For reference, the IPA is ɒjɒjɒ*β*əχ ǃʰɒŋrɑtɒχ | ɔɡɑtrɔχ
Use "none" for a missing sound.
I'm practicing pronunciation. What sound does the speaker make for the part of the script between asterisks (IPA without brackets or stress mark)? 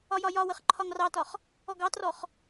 w